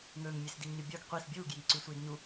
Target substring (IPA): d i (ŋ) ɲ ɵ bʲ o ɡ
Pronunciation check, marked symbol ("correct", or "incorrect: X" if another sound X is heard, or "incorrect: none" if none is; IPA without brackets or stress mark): correct